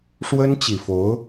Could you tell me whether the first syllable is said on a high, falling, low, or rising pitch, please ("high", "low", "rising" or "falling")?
high